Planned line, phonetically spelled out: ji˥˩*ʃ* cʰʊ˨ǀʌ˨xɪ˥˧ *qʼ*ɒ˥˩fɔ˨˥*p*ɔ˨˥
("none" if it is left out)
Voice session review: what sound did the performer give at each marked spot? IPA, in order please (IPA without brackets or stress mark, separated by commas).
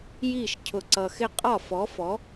ʃ, qʼ, f